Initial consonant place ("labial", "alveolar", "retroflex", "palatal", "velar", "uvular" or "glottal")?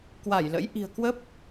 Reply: velar